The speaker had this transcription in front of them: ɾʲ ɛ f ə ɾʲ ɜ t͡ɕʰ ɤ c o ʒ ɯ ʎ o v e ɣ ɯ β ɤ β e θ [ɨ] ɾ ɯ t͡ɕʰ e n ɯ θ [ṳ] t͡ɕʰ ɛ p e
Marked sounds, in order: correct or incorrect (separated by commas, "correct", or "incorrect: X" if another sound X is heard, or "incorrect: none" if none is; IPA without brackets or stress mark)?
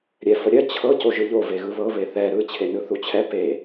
incorrect: ɛ, incorrect: u